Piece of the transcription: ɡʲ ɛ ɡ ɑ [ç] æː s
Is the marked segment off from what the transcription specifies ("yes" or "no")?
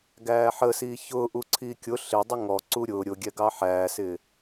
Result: yes